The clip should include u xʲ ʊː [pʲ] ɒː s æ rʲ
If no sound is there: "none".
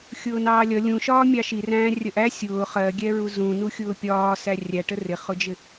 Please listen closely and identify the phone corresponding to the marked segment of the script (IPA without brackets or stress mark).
pʲ